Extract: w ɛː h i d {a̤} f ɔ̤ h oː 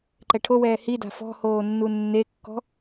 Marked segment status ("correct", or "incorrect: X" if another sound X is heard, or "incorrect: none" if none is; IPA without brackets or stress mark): correct